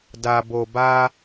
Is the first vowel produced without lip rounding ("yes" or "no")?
yes